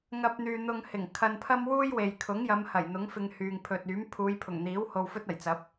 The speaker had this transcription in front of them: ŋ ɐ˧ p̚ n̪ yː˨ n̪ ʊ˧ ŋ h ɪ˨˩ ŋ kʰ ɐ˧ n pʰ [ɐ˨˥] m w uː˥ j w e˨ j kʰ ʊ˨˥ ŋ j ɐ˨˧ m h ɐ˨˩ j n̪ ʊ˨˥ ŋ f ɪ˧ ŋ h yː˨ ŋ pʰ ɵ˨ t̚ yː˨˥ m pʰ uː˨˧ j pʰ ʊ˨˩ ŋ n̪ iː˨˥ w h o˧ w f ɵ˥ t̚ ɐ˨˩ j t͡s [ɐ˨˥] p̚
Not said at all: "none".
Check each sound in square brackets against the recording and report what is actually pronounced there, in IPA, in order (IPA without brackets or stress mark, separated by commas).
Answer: ɐ˥, ɐ˨˥